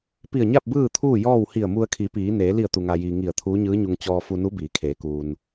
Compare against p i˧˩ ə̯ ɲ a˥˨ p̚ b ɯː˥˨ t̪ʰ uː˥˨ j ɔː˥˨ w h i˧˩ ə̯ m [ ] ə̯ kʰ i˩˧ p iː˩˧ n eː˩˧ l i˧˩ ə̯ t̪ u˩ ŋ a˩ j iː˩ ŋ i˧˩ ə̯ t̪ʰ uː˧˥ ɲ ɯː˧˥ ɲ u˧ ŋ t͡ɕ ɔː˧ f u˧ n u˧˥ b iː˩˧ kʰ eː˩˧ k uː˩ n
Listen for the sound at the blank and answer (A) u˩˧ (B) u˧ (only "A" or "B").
B